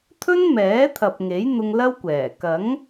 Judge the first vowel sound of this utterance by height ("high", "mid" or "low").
mid